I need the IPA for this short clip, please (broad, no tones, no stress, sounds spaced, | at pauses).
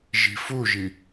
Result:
ʒ i̤ f u ʒ i